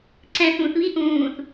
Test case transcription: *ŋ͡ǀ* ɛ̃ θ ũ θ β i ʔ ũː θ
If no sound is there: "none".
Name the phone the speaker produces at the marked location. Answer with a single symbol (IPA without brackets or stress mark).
ǀ